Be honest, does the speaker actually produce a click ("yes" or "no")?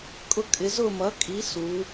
no